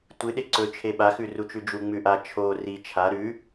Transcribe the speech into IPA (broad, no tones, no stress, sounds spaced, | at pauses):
tʷ ɨ ɗ e ǀ ɵ t͡ʃʰ e ɓ a x ʉ r u t͡ʃ ʉ d͡ʒ u ŋ͡m ʉ ʔ a t͡ʃʰ o r i t͡ʃʰ a ɾ ʉ